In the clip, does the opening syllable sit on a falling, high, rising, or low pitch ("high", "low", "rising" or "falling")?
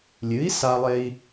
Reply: rising